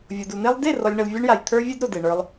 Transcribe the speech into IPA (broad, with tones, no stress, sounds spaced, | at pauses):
vʲ o˨ d u˨ n̪ e˦ lˠ d e˦˨ r ɔ˨ lʲ ɳ ə˨ l vʲ a˦ ɳ j a˨ j t̪ʰ ə˞˧ vʲ e˦ d ɾ o˨ d e˨ ɳ ə˞˧ lˠ